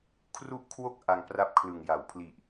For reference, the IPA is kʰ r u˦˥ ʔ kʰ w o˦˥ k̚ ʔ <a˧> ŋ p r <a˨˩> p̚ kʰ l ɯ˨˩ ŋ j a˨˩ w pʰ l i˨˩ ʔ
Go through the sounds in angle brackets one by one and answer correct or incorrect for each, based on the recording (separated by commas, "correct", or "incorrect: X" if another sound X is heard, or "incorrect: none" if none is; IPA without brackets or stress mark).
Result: correct, incorrect: a˥˩